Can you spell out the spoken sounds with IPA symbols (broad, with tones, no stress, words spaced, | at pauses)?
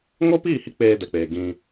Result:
ŋo˦piː˦˨ hi˦k͡peː˧dɛ˨k͡peː˨ ɡĩ˧